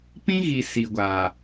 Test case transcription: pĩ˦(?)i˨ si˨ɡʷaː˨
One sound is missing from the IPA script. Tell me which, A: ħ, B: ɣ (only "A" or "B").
B